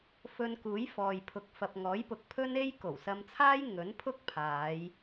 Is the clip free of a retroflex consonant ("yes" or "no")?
yes